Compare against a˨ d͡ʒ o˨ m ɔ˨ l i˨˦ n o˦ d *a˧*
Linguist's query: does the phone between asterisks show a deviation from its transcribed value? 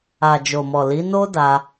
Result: no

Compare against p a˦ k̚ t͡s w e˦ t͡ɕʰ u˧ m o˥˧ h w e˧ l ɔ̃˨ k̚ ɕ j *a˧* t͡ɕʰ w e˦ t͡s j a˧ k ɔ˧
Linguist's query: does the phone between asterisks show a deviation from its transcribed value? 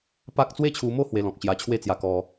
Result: no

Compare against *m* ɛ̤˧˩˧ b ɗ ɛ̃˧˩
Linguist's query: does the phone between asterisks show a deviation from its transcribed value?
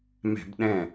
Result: no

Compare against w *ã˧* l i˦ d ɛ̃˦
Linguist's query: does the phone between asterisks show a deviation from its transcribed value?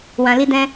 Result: no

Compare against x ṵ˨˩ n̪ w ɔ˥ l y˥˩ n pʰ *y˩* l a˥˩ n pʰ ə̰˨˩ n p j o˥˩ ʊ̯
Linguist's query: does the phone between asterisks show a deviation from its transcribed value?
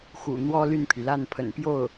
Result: no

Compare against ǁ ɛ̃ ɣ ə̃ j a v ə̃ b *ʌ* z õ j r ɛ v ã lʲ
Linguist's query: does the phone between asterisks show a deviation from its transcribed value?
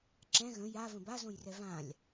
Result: yes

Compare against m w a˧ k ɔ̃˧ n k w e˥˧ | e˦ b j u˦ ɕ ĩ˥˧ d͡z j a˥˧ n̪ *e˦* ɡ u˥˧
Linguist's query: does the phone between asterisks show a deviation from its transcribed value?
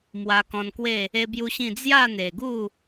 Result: yes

